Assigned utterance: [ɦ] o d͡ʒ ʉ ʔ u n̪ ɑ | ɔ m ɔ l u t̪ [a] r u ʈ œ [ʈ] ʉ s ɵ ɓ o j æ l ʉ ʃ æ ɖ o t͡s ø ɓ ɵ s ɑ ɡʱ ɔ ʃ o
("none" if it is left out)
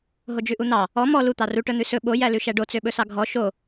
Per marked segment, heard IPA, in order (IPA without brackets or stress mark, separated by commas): ɦ, ɑ, n̪